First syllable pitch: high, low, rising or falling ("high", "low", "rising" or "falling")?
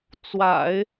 low